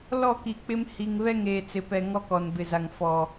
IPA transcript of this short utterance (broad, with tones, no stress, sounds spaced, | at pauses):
l ɔ˦˨ k i˨ k͡p ɪ˦ m h i˨ ŋ β ɛ˦ ŋ eː˨ t͡s ɪ˨ p ɛ˨ ŋ ɔ˦ k ɔ˨ n b ɪ˨ z a˨ ŋ f ɔ˨